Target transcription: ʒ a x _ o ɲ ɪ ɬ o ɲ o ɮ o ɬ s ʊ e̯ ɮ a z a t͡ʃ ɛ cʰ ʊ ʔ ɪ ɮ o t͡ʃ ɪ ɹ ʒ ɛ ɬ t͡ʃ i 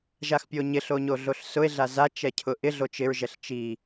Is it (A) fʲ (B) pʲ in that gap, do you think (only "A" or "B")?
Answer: B